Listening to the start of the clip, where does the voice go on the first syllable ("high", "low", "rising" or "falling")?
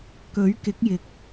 rising